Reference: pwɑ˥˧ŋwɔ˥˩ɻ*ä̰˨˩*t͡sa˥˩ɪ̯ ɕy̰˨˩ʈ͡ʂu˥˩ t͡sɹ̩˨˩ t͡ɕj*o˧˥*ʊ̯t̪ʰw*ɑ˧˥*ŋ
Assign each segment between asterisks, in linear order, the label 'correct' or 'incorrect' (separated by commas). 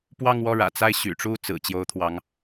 correct, correct, correct